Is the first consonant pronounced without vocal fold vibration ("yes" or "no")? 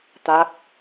yes